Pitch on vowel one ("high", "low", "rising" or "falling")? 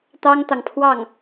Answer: high